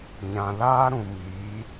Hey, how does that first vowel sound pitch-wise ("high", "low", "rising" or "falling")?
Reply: low